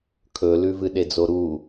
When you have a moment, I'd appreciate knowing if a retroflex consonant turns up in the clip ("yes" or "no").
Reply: no